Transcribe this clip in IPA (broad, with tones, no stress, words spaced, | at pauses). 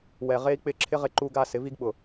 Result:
wɛ˨ʁe˦i̯k͡pɪ˦˨ ǁʰɪ˦ʁɪ˧ǃu˧ɡa˧ sɪ˨˦vi˦ɡɓʊ˨